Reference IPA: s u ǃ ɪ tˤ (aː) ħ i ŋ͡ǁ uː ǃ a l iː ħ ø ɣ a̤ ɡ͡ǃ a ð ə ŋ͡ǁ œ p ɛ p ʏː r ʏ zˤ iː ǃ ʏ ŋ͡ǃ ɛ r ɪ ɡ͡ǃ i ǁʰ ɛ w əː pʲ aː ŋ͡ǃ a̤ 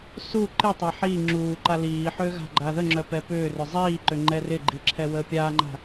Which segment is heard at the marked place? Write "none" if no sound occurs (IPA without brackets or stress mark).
a